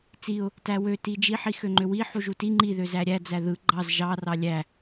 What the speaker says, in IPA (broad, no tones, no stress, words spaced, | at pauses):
t͡siʊ̯ | tæwø tid͡ʒiħi xøŋ͡ǃøwi ħuʒuti ŋ͡ǃiðøzæ ɾʲæd͡zæ ðɯ ɡ͡ǃɑz ʒɑ rɑlʲæ